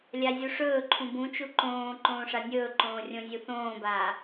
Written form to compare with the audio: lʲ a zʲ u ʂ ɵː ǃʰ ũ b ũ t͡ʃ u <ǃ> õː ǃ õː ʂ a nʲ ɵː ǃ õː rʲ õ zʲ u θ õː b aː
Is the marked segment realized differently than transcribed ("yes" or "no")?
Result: no